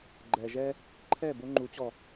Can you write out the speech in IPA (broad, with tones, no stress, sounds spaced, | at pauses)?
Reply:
ɡ͡ǃ ɛ˨ ʒ ɛ˦ | ǃʰ ɛ˦˨ b o˦ ŋ͡ǃ u˨˦ t͡ɕ ɔ˨